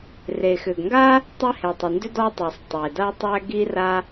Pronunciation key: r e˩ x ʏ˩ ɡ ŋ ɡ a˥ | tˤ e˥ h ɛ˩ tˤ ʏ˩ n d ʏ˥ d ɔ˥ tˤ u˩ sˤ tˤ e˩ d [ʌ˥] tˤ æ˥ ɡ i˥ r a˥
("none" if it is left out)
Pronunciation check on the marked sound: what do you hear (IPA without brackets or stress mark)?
a˥